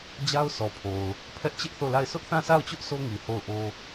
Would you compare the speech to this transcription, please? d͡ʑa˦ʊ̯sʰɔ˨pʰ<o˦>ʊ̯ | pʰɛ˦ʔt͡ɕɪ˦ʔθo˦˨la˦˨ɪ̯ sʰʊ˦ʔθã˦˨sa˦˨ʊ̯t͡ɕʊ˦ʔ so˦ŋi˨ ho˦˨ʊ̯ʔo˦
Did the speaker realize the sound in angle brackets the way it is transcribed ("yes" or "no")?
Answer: no